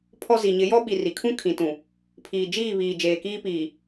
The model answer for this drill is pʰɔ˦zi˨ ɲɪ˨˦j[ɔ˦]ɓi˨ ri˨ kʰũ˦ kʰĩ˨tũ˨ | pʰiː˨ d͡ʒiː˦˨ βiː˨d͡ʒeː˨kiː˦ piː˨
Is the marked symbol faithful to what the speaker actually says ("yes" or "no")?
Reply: yes